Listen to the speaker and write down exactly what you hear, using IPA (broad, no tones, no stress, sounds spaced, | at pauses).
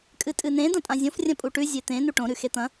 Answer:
kʼ ɨ tʼ ɨ n ẽ d ɐ̃ tʼ ã zʲ õ f rʲ ɐ̃ pʼ u ʈ ʉ zʲ e t̪ ẽ n u ʈ õ ɾ ʉ x e t̪ ɐ̃